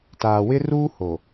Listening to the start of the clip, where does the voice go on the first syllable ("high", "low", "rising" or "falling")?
low